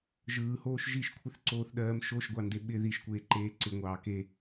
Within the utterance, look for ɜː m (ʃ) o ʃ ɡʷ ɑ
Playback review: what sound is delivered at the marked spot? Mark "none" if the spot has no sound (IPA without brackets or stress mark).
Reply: ʃ